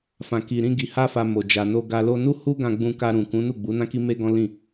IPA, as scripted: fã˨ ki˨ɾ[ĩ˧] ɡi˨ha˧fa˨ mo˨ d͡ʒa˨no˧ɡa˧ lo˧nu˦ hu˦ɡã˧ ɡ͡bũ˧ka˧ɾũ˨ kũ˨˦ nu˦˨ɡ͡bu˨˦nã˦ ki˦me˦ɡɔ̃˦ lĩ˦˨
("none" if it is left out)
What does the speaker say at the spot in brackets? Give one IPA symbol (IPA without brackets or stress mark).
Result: ĩ˧